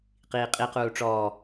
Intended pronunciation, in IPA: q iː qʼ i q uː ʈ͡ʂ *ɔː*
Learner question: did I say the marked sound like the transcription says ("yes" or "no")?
yes